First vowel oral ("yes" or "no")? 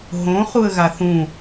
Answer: no